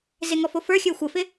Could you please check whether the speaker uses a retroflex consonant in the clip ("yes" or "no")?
no